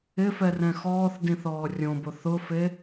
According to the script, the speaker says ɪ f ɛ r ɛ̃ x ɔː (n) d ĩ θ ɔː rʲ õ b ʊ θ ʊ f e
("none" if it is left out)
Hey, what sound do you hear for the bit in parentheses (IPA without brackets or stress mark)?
θ